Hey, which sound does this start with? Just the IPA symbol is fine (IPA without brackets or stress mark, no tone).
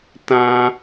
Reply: t